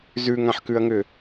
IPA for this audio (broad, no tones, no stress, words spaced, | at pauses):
zʉŋãħkʉɐ̯ŋʏ